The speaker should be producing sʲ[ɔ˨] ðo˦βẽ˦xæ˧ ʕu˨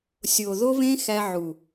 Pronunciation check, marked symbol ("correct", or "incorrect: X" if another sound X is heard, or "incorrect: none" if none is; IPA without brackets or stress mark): incorrect: o˨